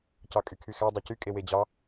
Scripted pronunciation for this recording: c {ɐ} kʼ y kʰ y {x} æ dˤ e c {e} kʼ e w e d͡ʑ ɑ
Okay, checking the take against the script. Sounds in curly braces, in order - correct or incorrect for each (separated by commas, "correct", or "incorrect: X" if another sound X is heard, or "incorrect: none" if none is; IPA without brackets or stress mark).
incorrect: ɑ, correct, incorrect: y